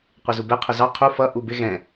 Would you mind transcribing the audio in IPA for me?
qʷ ɪ z u b ɛ qʰ ʊ z ɑ qʰ u f ʌ ʔ u b ɪ ɣ ɛ̃

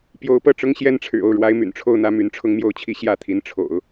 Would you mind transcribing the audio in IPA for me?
p j o˧˥ ʊ̯ p ɤ˥˩ ʈ͡ʂ ʊ˧˥ ŋ ɕ j ɛ˧˥ n ʈ͡ʂʰ ɻ̩˨˩ o˥˩ ʊ̯ ɻ w a˧˥ ɪ̯ m y̰˨˩ n ʈ͡ʂʰ o˥˧ ʊ̯ n̪ ä˥˩ m y˧˥ n ʈ͡ʂʰ ʊ˥˧ ŋ m j o˥˧ ʊ̯ t͡ɕʰ i˥˧ ɕ j ä˥˩ t̪ʰ i˧˥ n ʈ͡ʂʰ o̰˨˩˦ ʊ̯

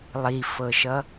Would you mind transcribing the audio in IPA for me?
lˠ i f ɤ ʃ ʌ

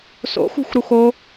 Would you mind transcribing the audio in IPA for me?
s o̰ x ṳ x ɾ u x o

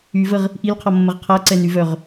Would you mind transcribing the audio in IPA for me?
y v ə ʁ | ʔ i l qʰ ɔ mː ə ʁ qʰ a ǀ ɛ n y v œ ʁ

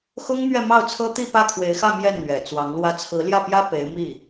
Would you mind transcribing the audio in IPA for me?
x ʊ˥ ŋ m ɥ ɛ˥˧ m ɑ˥˩ ʊ̯ t͡sʰ ɤ˥ t̪ i˥˧ p ä˥˩ kʰ w e˧˥ ɪ̯ x ä˥˧ m j ɛ˥˩ n n̪ ɥ ɛ˨˩ t͡s w ɑ˧˥ ŋ l w ä˧˥ t͡sʰ ɹ̩˧˥ l j ä˥˩ p j ä˥ p e˧˥ ɪ̯ m i˥˩

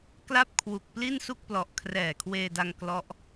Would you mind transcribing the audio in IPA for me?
k l a˥˩ p̚ kʰ w u˨˩ k̚ p l i˥˩ n s u˥˩ k̚ p l ɔ˨˩ ʔ kʰ r ɛː˨˩ kʰ w eː˧ d a˧ ŋ k l ɔ˦˥ ʔ

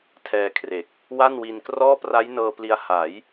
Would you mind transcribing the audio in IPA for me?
tʰ ɛː˧ kʰ r e˨˩ k̚ | w a˥˩ n w i˧ n k r ɔː˥˩ p r a˦˥ j n ɤː˧ p l i˧ a̯ h a˩˦ j

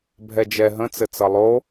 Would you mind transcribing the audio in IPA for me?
bʱ ɛ d͡ʒ ɛ ɦ ə̃ t͡s ɘ t͡s ʌ lˠ o

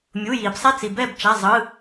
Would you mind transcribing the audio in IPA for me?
mʲ u˩˧˩ j iː˩ b sˤ ɛ˦˨ t͡s i˩ b ɛ˦˨ b t͡ʃ a˩˧˩ zˤ ɯ˩˧˩

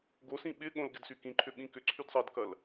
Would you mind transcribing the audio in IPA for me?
ɡ o s ĩ ɓ ɪ ɠ õ l ɡ ɪ d s y k ĩ ǃʰ ʏ ɓ ĩ k ʏ ǀʰ y d sˤ ɐ d k ɐ l

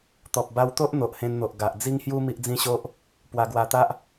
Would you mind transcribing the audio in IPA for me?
t̪ ɔ˨ p̚ b a˧ w t̪ o˦ ʔ n̪ o˨ ʔ h ẽ˧ n n̪ o˨ ʔ ɡ a˨ ʔ d͡z i˦ ŋ h j u˦ m i˦ ʔ d͡z ĩ˦ ɕ o˦ ʔ | p w a˧ ɡ w a˧ t̪ a˦ ʔ

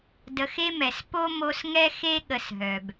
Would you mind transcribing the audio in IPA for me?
d ə˨˦ x e˦ m ɛ˨ s p o˦ m o˧ s ŋ ɛ˦ x e˦ ɠ ə˧ s ɦ œ˨ b

